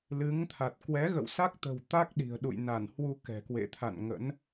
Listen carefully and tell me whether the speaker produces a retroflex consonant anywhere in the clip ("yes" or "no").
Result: no